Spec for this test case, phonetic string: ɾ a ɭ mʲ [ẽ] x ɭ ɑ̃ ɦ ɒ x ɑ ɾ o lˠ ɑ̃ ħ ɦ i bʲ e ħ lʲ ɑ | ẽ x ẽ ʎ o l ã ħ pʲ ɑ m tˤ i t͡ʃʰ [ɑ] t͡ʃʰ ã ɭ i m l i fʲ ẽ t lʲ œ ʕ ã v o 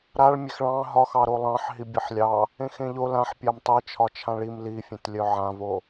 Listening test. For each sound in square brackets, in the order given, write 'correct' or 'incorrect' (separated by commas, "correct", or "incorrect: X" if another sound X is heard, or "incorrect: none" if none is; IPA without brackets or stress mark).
incorrect: e, incorrect: ɒ